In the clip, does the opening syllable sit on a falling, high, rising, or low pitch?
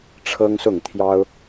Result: high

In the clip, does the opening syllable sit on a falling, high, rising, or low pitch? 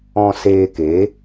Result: low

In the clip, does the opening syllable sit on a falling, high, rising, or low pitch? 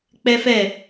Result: high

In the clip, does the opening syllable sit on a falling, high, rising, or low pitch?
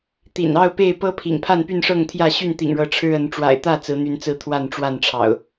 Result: low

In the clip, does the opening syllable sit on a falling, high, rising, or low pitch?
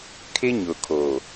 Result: high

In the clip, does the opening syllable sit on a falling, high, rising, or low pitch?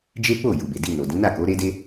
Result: high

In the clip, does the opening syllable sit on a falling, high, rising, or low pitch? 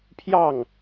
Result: falling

